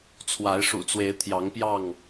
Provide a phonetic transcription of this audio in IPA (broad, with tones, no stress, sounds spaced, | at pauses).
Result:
t͡sʰ w a˨˦ ɪ̯ ʂ ṵ˨˩ t͡s w e˨˦ ɪ̯ t̪ʰ j ɑ˨˦ ŋ p j ɑ˥˨ ŋ